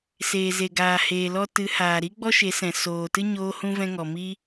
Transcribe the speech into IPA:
s eː˨ z e˨ ɡ aː˨ h eː˨ l ɔ˧ t ɨ˨˦ h aː˨ ɾ i˦ ɡ͡b ɔ˦ ʃ e˨˦ s ɛ̃˨ s oː˨ t ɨ˦ ɲ oː˦ h ũ˦ v ɛ̃˧ ŋ ɔ˨ m i˦

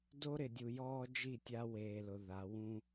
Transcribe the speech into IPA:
d o˦ ɾ ɪ˨ dʲ u˨ j ɔː˦ d͡ʒ i˦˨ tʲ a˦ w eː˨ l ʊ˨ ð a˨˦ w ũ˦

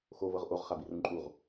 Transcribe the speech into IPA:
x o v ɤ ʁ ʔ o ʁ χ a b i r ũ ǃʼ u ʁ

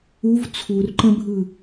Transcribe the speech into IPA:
u v t͡sʰ u r ǃ ə̃ bʱ ɯ

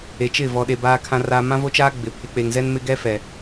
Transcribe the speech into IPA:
e˨ t͡ʃ ɪ˦˨ v ɔ˨ ɗ e˨ b aː˨ kʰ ã˨ r aː˨ m ã˦ v o˦ t͡ʃ aː˦ ɡ͡b ɪ˨ pʰ ɪ˨ k͡p e˨ ŋ z ɛ˦ n m ɪ˦ ɡ ɛ˦ f ɛ˨

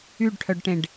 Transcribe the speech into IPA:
y ɖ ʈʰ œ ɖ ʈ ẽ ɖ

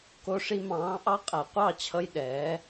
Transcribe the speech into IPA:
k o˧ ʂ i˧ m ɑ̃ː˨˦ ʔ ɑ˦ qʼ æ˨ qʷ ɑ˦˨ t͡ɕʰ ʌ˧ j ɗ ɛː˨˦

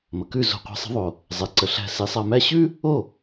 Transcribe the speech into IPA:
m ə˩ k ʉ˥˩ z o̤˧ qʷ i̤˩˥ sˤ ə̤˩˥ ðˤ o˩ | zˤ e˩ ǀ ə˩ ɬ æ̤˧ s i˩˥ sˤ a˧ m æ˥ ɕ ʉ˥ | o˥˩

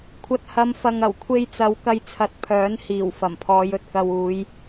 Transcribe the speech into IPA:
kʷʰ ɐ˨ t̚ h ɐ˨˧ m f ɐ˨ ŋ ɐ˨˩ w kʷʰ e˧ j t͡s ɐ˨˧ w k ɐ˧ j t͡sʰ ɐ˨˥ t̚ pʰ œː˨˥ n h iː˨˩ w f ɐ˨˩ m pʰ ɔː˨˧ j ɵ˨ t̚ k ɐ˨ w uː˨˧ j

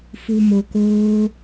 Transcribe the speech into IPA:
f u˧ m o˧ k oː˦

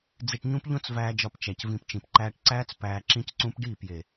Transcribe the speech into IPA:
d͡z i˧ ʈ ɲ ũ˦ p ʎ õ˦ t͡s v æː˧ d͡ʒ ɒ˧ p t͡ʃ æ˨ c v ĩ˧ p t͡ʃ ĩ˨ p ǃ æː˦ ʈ ǀ æː˦ t͡s p æː˧ ǁ ĩ˦ c ǀ ũ˦ p ɖ iː˦˨ p j e˨

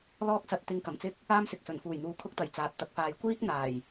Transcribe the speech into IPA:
l ɔː˥ k̚ s ɐ˧ t̚ t̪ ɪ˧ ŋ k ɐ˨˩ m t͡s ɪ˥ k̚ | aː˥ m s ɪ˨ k̚ s ɵ˨˩ n f uː˨˩ j n̪ uː˨˧ kʰ ʊ˧ k̚ t̪ ɐ˨˩ j t͡s aː˨ t̚ t̪ ɐ˧ k̚ f aː˧ j kʷ iː˥ k̚ n̪ aː˨˩ j

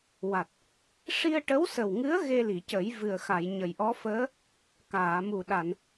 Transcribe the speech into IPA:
w a˨˩ t̚ | ʂ i˧ ə̯ ʈ ə˧˥ w s ə˨˩ w ŋ ɨ˧˥ ə̯ ɣ e˧ l i˨˩˨ c ə˨˩˦ j v ɨ˨˩ ə̯ x a˨˩˨ j ɲ ə˨˩ j ʔ ɔ˧˥ f əː˧˥ | k aː˨˩˨ m u˨˩ ɗ a˨˩˨ n

